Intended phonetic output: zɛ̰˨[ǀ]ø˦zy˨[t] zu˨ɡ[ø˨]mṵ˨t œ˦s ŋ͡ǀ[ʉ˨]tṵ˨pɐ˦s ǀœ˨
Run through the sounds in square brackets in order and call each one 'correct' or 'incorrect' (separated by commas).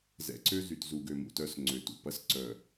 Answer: correct, correct, correct, incorrect